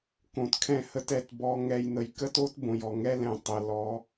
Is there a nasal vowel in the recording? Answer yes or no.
yes